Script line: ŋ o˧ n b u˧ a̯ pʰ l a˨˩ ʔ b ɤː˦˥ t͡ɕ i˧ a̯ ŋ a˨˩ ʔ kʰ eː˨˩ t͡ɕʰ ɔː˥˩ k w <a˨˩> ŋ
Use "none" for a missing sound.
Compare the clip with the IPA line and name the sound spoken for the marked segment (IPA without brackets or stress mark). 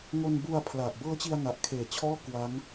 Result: a˦˥